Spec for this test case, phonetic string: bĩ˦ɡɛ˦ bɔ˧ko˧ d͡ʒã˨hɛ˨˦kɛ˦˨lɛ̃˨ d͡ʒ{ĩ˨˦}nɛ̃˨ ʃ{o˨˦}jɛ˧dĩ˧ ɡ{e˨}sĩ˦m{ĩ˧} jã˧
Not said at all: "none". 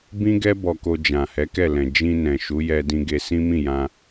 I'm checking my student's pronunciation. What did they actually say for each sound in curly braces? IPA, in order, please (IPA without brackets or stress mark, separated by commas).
ĩ˧, u˨˦, e˧, ĩ˦˨